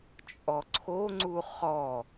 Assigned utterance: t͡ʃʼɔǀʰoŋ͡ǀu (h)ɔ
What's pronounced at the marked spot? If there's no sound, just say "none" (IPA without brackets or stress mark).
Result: χ